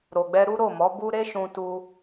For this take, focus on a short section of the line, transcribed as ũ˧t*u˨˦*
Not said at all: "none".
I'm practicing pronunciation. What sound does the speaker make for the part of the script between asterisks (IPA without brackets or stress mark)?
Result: u˧